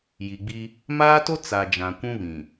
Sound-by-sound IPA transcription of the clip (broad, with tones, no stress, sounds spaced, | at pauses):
j i˨ ɡ͡b i˦ | m aː˦ t o˦ t͡s a˨ d͡ʒ ã˨ kʷ ũ˦ β ĩ˨